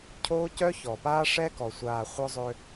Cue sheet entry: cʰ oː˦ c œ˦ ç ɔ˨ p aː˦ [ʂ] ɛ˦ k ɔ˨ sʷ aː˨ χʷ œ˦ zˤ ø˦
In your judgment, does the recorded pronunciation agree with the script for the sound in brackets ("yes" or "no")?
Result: yes